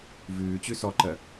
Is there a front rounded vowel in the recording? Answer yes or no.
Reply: no